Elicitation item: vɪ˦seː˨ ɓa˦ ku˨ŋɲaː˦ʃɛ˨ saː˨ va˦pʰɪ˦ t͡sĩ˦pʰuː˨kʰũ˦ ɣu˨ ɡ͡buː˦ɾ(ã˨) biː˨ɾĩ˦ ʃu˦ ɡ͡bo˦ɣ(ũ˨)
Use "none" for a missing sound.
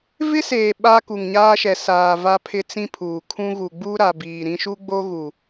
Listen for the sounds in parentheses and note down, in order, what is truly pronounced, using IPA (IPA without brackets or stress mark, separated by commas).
a˨, u˨